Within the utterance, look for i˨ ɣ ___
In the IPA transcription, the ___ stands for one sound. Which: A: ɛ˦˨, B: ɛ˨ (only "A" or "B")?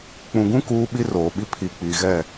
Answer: A